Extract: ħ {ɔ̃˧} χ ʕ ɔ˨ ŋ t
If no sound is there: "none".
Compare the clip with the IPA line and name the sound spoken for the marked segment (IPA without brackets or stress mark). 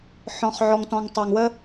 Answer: ɔ̃˨